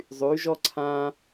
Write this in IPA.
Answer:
zˤ yː˩˧ ʒ ɔ˧ ǀʰ ãː˧

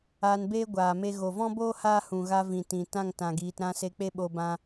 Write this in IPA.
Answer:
aː˧ n b eː˦ ɡʷ aː˨ m e˧ ɣ o˨ v ɔ̃˦ b oː˦ h aː˦ h ũ˨ ɣ a˧ v ĩ˨ t ĩ˨ t ã˦˨ ŋ t ã˨ ɡ iː˨ t ɾ ã˦ s e˧ k͡p e˦ ɓ o˧ b ã˧

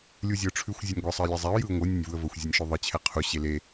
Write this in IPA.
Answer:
lʲ u zʲ ə ʊ̯ ʈ͡ʂʰ ʉ xʷ zʲ ʉ nʲ ɡʷ ə sˤ ə ɪ̯ lʲ ɛ zˤ ɛ ʊ̯ j ɯ ʊ̯ ŋʷ ɯ nʲ ə nʲ v u ə̯ v ə xʷ zʲ e nʲ ʃ ʉ ðˤ ɯ t͡ɕʰ ɛ qʰ u ɕ e l e

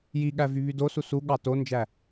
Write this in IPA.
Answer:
j i ɠ æ v y β y d o s u s u ɠ ɑ t o n d͡ʒ æ

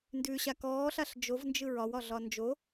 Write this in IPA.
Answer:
n d ʉ ɕ a k ɔː ɬ a ɬ d͡ʒ o v n d͡ʒ ɯ ɹ ɒ w ɒ ɮ ɒ n d͡ʒ o

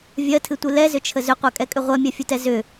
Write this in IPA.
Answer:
vʲ ɜ tʰ ɨ tʷ ɨ l ɛ z ʏ t͡ʃʰ ə z ʏ qʷ ɜ kʼ ɛ kʼ ʏ ʁʷ ɜ mʲ ɜ fʲ u t ɛ z ʏ

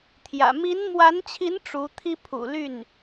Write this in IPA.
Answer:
t̪ʰ j ä̰˨˩ m i˧˥ n m w a˧˥ n t͡ɕʰ i˧˥ n ʈ͡ʂ u˧˥ t̪ʰ i˥ pʰ ṵ˨˩ l y˥˩ n

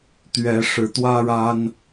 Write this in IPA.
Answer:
t̪ ɥ ɛ˨˦ ʂ ɻ̩˨˦ t̪ w ä˦ ɻ a˦ n

